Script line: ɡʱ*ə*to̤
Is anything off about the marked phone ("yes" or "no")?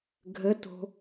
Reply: no